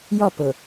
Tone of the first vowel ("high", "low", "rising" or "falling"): falling